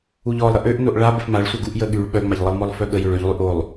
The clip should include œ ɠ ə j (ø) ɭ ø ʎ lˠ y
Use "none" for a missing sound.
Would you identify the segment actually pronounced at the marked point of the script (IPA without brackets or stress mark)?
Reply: ø